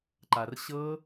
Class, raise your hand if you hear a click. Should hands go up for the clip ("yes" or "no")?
yes